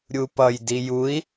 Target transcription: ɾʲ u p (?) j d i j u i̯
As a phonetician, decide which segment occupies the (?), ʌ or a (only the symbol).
ʌ